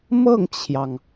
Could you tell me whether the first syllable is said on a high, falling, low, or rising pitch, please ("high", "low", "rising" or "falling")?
falling